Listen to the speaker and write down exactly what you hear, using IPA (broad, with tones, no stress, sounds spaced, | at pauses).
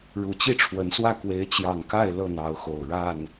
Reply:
ɻ u˨˩ t͡ɕ i˥˨ ʈ͡ʂʰ w ə˨˦ n s w ä˥˨ k w e˨˦ ɪ̯ t͡ɕ j ɑ˨˩ ŋ k a˥˨ ɪ̯ l ɤ˥˨ n̪ ɑ˨˦ ʊ̯ x o˨˩ ʊ̯ ɻ a˥˨ n